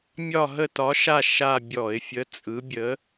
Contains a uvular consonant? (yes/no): no